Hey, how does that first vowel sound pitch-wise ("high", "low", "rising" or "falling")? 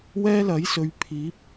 high